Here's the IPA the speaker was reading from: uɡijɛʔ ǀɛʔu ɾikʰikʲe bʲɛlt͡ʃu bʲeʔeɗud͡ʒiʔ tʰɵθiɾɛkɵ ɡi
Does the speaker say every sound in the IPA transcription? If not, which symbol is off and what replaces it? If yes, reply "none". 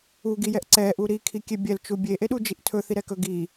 none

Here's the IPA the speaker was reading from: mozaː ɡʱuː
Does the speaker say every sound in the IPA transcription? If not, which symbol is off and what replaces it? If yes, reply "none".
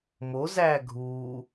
aː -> æː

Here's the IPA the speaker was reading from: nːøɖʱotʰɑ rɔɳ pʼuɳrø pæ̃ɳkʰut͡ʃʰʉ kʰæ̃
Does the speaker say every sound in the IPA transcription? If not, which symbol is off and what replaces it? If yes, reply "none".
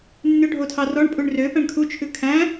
none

